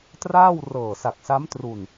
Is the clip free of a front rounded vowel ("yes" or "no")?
yes